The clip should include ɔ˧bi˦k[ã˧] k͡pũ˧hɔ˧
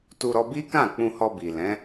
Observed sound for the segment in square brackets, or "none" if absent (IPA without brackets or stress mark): ã˦˨